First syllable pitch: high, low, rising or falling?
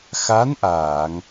rising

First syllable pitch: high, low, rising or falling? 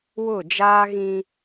falling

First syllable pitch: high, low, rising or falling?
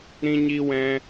high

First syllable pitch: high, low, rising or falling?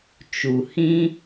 low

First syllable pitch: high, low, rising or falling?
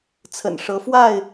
low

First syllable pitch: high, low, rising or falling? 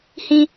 high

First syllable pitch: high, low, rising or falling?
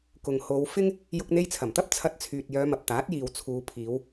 low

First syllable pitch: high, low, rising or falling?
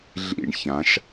falling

